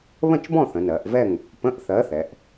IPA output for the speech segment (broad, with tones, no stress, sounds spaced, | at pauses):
β ə̃˥˨ t͡ʃ b ɔ̃˥˨ θ ə̃˩˧ n ɜ˩˧ ʔ v ɛ˥˨ ŋ | p ə̃˧˥˧ ʔ θ ɜ˨˥ θ ɛ˩˧ ʔ